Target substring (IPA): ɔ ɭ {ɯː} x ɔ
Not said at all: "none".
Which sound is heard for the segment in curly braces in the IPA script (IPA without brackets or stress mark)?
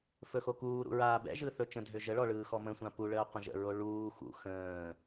ɯː